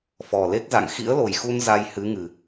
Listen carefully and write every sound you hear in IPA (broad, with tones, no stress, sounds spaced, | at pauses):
f ɔ˨˩ l e˦˥ k̚ z a̰˧˨ ŋ x ḭ˧˥ ə̯ l o˨˩ j x u˧ n z a˧ j h ɨ˨˦ ŋ ɨ˨˩